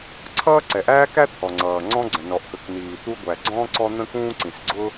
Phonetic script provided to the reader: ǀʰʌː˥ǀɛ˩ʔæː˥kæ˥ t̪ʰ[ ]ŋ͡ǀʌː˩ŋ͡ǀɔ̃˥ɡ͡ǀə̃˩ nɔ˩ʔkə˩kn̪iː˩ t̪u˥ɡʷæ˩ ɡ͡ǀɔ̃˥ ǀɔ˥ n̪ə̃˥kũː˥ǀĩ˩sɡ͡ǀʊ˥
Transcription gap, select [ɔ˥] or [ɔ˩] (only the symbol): ɔ˩